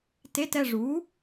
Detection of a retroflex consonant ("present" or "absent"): present